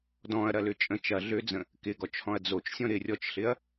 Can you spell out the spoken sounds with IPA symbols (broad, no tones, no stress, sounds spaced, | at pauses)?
d ɔ̃ ɐ̯ ɾ ɐ l ʏ t͡ʃʼ ə̃ t͡ʃ ɐ ɮ ø d͡z ə̃ | k ɪ ɡ ɔ t͡ʃ h ɔ̃ ɐ̯ d͡z o t͡ʃ sʲ ɔ̃ ɾ ɪ rʲ ɔ t͡ʃ ɬ ɪ ɐ̯